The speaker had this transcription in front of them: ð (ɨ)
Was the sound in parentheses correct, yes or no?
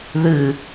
yes